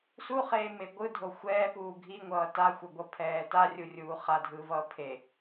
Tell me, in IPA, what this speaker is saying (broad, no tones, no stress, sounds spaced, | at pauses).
s u χ eː m e ɡʷ ɯ dʱ o xʷ ɛː p uː ɡʱ i ŋʷ ʌː t a xʷ ʌ ɡʷ ʌ pʰ ɛː t a rʲ u rʲ uː χ a dʱ ɯː v ʌː pʰ e